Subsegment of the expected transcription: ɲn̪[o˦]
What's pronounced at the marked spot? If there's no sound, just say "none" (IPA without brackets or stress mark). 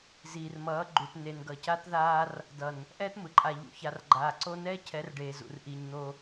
o˦